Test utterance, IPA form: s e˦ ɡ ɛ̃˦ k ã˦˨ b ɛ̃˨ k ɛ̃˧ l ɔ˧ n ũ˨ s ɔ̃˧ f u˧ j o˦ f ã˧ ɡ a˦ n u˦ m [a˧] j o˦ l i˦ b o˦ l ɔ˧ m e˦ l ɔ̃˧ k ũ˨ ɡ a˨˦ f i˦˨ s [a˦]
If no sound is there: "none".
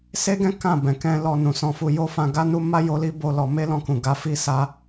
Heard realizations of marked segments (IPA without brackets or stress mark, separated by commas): a˦, a˧